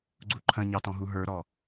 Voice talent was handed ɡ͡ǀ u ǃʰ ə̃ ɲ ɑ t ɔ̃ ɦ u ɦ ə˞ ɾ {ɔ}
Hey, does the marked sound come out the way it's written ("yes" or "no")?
yes